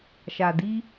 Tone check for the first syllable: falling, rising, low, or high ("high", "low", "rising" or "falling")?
low